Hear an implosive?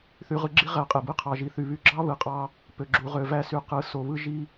no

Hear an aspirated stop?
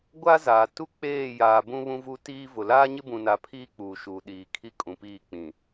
yes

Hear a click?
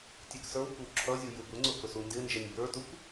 yes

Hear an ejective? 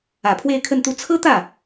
no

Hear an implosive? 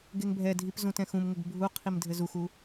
no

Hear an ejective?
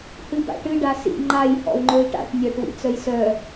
no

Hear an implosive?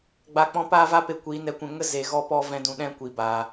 yes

